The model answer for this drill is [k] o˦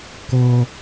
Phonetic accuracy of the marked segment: correct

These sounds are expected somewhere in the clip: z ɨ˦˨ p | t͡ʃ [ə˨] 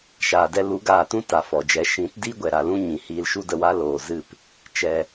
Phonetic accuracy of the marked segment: incorrect: ɛ˨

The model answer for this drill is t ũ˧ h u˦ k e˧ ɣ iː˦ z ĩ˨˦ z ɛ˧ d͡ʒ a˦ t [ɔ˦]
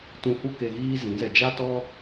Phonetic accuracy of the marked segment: correct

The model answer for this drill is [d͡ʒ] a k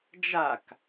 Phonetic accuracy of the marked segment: correct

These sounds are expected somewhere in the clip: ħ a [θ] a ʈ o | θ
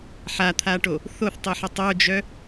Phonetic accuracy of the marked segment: incorrect: t̪ʰ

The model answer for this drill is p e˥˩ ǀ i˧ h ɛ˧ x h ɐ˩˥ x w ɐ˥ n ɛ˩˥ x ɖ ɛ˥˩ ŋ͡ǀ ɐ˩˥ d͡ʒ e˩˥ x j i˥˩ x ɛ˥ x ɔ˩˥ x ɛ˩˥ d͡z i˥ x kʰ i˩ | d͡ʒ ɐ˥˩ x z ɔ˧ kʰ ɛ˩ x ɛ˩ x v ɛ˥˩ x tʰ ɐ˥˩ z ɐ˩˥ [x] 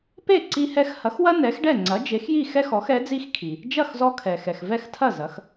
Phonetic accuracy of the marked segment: correct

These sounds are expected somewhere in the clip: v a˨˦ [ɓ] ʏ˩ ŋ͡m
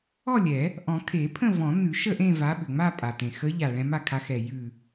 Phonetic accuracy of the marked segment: correct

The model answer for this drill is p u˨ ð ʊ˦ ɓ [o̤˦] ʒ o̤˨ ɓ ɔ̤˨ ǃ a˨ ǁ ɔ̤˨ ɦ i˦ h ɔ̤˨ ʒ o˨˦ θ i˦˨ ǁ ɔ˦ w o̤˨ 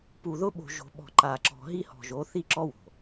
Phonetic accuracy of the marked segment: incorrect: o̤˨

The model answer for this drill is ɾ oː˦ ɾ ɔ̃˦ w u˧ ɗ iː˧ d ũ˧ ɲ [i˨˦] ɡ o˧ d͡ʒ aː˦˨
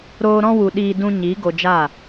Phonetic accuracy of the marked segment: correct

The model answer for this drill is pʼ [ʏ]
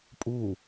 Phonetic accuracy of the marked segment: incorrect: u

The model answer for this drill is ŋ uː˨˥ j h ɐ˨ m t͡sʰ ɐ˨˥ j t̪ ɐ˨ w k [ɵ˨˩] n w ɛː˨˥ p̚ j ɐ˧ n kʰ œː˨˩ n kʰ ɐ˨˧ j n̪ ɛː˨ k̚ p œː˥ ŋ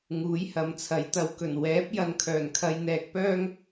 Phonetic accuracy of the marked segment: correct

